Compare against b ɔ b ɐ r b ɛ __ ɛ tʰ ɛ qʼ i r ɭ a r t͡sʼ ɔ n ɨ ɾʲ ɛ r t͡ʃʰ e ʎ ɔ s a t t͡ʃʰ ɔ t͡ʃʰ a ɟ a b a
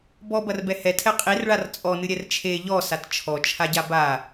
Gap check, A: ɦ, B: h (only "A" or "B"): B